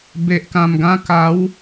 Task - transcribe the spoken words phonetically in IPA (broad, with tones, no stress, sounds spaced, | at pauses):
b e˨ ʔ k ã˨˩ m ɡ ã˧ k a˨˦ w